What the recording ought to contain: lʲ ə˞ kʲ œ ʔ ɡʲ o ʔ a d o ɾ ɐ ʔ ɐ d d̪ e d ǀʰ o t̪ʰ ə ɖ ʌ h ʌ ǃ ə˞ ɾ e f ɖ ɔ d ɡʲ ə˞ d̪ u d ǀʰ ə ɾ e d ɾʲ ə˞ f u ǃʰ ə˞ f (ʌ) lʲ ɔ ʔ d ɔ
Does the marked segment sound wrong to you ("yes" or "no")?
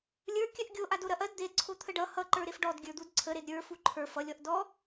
no